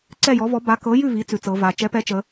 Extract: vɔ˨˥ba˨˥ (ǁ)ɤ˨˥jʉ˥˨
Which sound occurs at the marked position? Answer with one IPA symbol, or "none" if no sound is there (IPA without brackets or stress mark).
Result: k